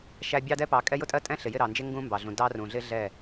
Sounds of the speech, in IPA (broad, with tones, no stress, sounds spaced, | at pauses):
ʃ æ˦ bʲ ɑ˦ d ɛ˦ p ɑ˨˦ kʼ ɛ˦ j ʊ˦ tʼ ɜ˦ tʼ ɛ̃˦ ɬ ɪ˨ j ɪ˦˨ ɾ ɑ˨ n d͡ʒ ɪ˦ ŋ ɡ ũ˦ m b ɑ˨ ɮ ũ˨ d ɑ˦ r ũ˨ ɮ ɪ˦ ɮ ɛ˦˨